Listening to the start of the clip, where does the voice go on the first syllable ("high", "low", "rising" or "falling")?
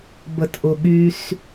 low